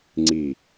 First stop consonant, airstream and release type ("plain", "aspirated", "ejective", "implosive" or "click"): click